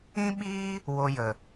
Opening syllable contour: high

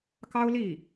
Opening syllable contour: high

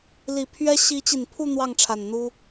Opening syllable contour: low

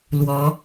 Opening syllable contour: rising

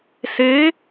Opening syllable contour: rising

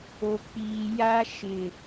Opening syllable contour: low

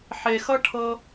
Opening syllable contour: low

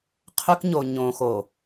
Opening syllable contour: high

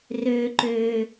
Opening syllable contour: low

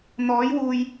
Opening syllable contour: rising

